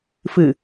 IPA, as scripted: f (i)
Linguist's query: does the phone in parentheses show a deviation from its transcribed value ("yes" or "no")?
yes